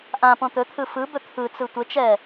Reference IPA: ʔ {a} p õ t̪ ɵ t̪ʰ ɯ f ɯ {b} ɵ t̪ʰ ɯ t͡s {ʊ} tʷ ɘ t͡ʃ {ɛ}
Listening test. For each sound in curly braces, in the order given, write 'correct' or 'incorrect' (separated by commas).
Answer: incorrect, correct, incorrect, correct